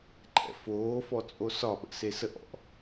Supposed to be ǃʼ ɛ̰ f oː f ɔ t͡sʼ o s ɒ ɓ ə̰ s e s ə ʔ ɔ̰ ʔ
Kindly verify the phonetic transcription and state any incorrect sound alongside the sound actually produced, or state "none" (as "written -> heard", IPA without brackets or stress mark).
none